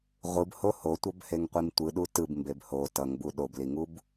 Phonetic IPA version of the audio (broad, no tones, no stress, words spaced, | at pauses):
ʁʷɯbho hotʷʌbheŋqʷim tʷɯɗu tɯbmbeb ho tʌŋbu ɗobliŋub